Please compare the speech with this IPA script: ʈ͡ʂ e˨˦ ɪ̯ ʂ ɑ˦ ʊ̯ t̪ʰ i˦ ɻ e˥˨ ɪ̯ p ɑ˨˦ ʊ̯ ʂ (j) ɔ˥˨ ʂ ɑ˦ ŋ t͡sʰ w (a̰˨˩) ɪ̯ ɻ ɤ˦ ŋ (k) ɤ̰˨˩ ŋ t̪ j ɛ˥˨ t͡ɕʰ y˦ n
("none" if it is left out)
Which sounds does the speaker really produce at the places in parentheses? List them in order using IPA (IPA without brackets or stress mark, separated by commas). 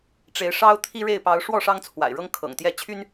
w, a̰˨˩, kʰ